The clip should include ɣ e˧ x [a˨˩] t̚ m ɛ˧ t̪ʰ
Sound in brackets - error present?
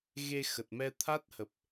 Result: yes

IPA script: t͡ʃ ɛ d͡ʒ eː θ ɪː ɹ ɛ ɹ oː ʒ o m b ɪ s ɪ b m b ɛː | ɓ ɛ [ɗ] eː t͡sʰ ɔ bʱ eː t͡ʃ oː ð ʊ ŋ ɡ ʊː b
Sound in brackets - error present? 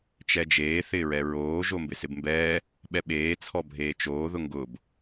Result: yes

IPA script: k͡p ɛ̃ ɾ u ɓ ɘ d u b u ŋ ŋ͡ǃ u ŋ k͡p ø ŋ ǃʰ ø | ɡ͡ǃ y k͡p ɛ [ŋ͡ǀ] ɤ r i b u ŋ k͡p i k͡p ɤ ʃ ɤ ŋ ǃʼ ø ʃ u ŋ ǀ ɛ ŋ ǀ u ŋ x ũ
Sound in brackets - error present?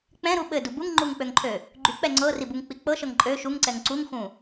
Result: no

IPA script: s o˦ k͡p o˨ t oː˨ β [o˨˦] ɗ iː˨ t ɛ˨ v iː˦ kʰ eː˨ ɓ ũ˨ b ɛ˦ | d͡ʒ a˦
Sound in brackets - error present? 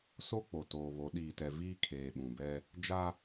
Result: no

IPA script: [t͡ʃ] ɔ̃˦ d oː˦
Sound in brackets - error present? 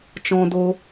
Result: no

